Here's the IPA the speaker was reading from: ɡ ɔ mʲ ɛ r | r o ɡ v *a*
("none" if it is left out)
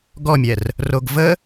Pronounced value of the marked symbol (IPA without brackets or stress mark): ə